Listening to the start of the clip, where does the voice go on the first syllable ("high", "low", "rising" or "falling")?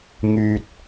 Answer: low